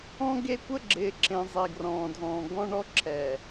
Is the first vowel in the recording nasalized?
yes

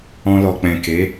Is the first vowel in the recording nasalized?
yes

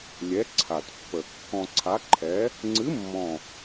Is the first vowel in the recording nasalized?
no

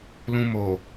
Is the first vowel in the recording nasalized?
yes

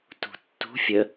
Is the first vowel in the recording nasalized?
no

